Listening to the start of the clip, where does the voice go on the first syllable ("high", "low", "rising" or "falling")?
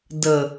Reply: low